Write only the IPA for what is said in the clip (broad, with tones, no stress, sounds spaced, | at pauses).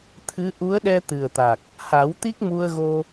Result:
t̪ʰ ɨ˧˥ ʔ u˧˥ ə̯ ɗ ɛ˧ t̪ ɨ˨˩ ə̯ t̪ a˨˩ k̚ | h a˨˩˦ w t̪ i˦˥ k̚ m u˧ ə̯ ɣ o˧